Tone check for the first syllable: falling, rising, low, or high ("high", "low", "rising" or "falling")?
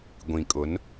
low